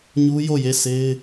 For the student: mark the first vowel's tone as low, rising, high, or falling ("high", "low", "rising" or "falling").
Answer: high